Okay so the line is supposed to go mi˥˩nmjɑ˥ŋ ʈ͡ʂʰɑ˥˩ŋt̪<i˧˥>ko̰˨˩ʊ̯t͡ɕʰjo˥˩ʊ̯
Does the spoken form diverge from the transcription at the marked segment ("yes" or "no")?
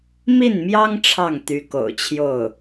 yes